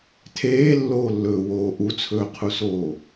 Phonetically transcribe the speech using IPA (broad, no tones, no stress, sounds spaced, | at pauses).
tʰ eː lː oː lː ɵː w oː ʔ u t͡sʰ ɵː qʰ u s oː